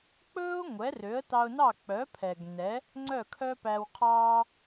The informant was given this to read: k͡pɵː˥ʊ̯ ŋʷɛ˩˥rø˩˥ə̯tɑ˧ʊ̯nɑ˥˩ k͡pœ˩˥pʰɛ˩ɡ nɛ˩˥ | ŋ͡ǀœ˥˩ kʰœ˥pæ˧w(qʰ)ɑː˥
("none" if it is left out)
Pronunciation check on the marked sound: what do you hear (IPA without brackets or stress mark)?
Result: qʰ